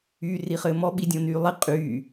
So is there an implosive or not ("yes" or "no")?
yes